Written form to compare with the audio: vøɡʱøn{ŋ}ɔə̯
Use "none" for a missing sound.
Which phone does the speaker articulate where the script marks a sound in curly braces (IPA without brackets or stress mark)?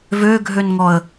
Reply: ŋ